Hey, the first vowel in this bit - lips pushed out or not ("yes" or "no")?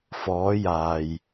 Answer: yes